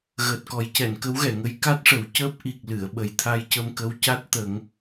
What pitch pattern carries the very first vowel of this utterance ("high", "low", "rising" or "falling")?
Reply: low